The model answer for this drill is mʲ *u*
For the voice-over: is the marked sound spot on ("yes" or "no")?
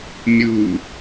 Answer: yes